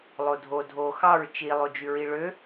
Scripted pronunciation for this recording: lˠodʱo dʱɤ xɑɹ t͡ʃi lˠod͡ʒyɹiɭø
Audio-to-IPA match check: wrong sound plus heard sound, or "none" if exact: ɤ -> o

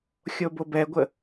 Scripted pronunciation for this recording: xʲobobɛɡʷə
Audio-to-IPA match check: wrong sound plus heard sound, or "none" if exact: none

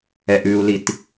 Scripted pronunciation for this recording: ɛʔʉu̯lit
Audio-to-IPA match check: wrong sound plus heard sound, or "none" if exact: none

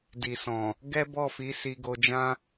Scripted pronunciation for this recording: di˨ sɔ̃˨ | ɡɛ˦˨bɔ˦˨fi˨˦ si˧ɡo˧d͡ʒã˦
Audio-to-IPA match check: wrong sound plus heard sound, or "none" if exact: ɛ˦˨ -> ɛ˦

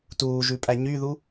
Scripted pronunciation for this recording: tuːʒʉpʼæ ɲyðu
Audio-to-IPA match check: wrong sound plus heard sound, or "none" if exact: none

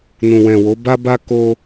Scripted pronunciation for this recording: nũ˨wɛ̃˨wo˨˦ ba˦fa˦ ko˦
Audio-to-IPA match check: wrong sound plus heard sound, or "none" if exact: f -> b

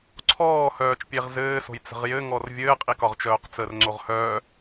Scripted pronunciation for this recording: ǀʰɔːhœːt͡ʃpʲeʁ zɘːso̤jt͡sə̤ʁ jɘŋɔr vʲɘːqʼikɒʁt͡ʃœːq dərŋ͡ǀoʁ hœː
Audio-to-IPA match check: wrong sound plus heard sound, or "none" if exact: d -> t͡s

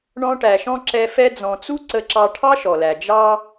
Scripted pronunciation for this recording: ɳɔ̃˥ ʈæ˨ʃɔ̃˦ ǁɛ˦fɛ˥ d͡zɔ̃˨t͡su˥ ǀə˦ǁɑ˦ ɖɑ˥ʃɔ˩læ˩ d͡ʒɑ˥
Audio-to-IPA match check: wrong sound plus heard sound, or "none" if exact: ɖ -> ʈʰ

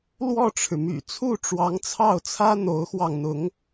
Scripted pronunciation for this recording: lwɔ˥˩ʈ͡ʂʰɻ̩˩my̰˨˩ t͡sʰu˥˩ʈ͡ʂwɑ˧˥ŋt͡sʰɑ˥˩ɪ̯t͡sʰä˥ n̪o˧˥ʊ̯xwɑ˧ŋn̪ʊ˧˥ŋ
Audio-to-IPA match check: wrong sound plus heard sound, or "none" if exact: ɪ̯ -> ʊ̯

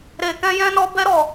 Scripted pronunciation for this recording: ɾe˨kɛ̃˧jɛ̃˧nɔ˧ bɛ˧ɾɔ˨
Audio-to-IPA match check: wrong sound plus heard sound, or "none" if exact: none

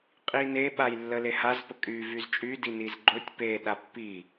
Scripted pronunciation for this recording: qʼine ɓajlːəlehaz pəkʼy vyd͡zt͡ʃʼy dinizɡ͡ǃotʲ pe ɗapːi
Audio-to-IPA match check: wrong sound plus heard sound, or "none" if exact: d͡z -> z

